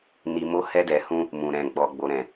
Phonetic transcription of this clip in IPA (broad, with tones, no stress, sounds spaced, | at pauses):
n i˧ m o˦ h ɛ˧ d ɛ˨ h ũ˧ | m ũ˨ ɾ ɛ̃˨ ɡ͡b ɔ˨ ɡ͡b o˨ ɾ ɛ̃˨